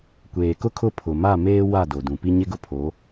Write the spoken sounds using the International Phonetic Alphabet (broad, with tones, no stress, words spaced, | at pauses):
kʷeː˨kʊ˦kʰʊ˦˨ pʰʊ˨ma˦˨meː˦ wa˦˨do˨dũ˨pi˦ ɲɪ˦ɡʊ˦pʰo˨˦